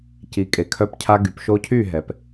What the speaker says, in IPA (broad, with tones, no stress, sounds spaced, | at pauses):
c i˨ kʼ e˨ kʰ œ˧ p cʰ a˧ ɡ y˨ p ʃ o˧ cʰ y˦˨ ɦ ɛ˨ p